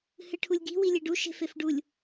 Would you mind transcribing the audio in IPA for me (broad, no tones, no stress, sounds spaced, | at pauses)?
h ɨ ʈʰ u lʲ ɡ i̤ w i lʲ e ɖ u ʃ e̤ f e f ɖ u lʲ